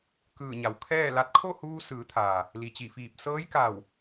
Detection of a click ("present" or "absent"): absent